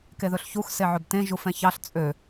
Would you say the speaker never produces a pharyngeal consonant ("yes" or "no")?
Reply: no